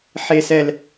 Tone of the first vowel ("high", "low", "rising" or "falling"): high